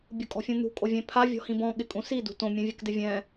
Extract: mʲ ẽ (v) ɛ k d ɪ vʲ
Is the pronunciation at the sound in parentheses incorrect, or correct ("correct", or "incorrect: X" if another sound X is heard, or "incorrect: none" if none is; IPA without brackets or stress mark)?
incorrect: vʲ